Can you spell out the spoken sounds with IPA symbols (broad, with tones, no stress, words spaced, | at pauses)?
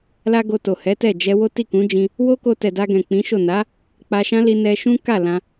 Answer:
la˦ ɡo˧to˨hɛ˨˦tɛ˦˨ d͡ʒɛ˧wo˦ ti˦˨kũ˨˦d͡ʒĩ˧ | wo˦ko˧ tɛ˨da˧ɡɛ̃˨ k͡pĩ˨˦ʃo˦˨ na˨˦ | k͡pa˧ʃã˦li˧ nɛ˧ʃũ˦ ka˦˨ lã˧